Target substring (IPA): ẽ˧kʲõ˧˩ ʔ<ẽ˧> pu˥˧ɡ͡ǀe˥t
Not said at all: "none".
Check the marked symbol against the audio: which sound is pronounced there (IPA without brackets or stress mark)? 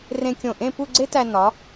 ẽ˥˧